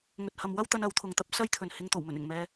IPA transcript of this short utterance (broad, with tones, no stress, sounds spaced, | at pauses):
ŋ ɵ˨ t̚ h ɐ˨ m w ɐ˥ w t̪ ɐ˧ n ɐ˨˥ w t̪ʰ ʊ˨ ŋ t̪ ɐ˥ p̚ s ɐ˥ j t̪ʰ ɵ˨ n h ɪ˧ ŋ t̪ o˨˩ w m ɵ˨˩ n ɪ˨˩ ŋ m ɛː˨